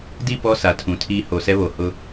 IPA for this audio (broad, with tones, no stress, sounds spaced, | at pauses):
d i˦˨ p ɔ˦ s a˨ tʰ ũ˨ tʰ iː˦ h o˨ s ɛ˦ β o˨ h ʊ˦